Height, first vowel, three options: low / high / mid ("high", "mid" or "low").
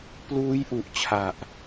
high